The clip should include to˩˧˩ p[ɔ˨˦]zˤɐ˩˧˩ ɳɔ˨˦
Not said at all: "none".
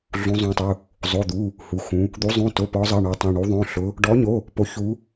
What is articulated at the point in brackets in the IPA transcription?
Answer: ɔ˨˦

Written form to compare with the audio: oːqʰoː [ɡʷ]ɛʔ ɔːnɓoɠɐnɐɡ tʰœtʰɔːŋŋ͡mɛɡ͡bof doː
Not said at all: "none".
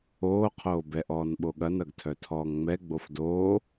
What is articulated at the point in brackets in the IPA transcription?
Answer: b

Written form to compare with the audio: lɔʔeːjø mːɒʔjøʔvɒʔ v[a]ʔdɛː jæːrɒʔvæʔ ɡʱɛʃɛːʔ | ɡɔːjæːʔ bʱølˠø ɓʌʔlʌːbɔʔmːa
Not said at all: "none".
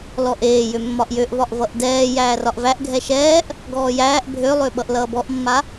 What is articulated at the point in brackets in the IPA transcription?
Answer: ʌ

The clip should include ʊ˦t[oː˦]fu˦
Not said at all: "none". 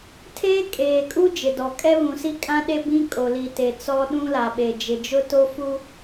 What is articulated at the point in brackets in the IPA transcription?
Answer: o˦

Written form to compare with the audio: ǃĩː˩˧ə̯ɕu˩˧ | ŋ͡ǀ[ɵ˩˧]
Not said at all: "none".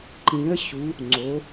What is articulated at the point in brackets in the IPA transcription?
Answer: o˩˧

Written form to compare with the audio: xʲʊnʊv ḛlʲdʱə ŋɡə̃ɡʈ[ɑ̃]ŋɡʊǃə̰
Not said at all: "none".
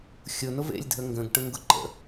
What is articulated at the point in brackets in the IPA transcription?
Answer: ə̃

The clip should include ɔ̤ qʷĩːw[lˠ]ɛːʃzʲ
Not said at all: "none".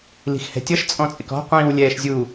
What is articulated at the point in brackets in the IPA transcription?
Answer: lʲ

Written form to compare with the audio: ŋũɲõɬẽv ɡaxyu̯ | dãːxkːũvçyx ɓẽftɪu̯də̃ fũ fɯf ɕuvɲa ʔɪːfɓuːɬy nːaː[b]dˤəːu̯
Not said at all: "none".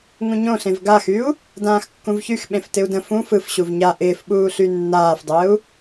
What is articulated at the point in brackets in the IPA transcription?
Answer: f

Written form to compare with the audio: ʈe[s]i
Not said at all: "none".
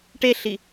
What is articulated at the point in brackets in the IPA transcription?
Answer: ɬ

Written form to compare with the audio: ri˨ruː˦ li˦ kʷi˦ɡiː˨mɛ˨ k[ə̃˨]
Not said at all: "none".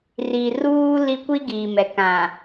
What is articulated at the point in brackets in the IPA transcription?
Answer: ã˨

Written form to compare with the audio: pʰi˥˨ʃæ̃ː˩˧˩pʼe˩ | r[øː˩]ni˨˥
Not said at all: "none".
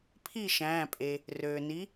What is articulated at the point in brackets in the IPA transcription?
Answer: øː˩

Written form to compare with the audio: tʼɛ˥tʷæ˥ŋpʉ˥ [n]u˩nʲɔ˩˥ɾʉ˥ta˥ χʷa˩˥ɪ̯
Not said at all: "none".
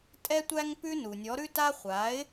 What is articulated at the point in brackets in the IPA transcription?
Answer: n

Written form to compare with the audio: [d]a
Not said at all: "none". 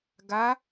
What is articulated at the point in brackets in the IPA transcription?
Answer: ɡ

